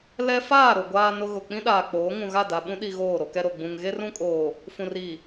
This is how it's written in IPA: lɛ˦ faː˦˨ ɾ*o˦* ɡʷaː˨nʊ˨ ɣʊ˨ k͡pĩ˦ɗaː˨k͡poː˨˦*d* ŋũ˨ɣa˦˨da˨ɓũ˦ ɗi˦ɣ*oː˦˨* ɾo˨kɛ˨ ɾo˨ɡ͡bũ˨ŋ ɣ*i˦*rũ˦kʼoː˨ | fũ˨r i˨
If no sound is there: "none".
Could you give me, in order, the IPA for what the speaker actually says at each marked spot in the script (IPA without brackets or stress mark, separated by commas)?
o˨, none, oː˦˨, e˦